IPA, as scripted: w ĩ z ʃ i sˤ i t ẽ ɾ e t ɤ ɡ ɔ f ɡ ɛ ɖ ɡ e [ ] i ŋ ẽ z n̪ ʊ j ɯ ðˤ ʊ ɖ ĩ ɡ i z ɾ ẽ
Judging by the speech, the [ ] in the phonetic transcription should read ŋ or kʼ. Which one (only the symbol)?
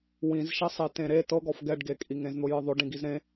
kʼ